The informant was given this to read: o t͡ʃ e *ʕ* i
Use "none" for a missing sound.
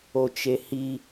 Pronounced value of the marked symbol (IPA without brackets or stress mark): h